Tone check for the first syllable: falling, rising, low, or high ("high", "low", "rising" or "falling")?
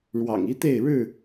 low